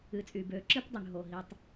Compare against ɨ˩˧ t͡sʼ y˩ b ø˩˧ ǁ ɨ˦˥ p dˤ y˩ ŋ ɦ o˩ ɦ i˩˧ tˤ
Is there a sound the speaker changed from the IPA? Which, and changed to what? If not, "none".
none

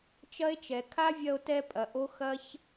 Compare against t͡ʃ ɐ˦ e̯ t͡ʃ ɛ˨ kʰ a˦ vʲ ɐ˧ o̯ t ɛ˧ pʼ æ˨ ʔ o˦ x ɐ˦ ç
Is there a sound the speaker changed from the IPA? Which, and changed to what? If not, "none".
æ˨ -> ɐ˨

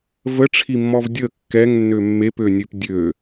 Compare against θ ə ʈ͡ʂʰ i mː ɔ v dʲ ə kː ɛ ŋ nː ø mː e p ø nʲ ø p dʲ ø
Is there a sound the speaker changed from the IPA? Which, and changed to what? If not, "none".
θ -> v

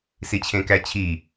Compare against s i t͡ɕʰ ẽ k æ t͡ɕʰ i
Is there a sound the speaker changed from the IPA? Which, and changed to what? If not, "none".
none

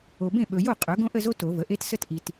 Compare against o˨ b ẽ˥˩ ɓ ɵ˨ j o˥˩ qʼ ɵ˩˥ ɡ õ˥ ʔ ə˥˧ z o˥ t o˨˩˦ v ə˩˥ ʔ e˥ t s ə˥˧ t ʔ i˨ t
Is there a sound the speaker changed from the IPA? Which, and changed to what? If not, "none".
none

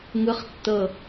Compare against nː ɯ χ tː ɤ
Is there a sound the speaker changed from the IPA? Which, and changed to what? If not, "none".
nː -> ŋ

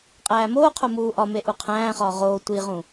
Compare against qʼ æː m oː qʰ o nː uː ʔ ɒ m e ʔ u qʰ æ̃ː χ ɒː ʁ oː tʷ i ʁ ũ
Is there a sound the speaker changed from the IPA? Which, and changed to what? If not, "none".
nː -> m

